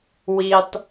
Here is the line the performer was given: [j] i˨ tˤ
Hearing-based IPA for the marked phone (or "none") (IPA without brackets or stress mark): w